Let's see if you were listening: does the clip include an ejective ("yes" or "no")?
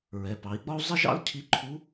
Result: no